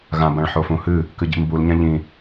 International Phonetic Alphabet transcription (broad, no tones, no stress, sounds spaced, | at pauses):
ɣ ã b ã ɭ ħ o f ũ h ɨ | k ɨ ɟ ḭ m b u l ɲ ã ʎ ĩ